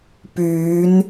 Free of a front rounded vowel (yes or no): no